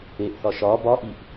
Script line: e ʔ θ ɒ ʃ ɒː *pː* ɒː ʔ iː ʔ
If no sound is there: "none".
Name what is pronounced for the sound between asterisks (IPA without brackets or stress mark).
b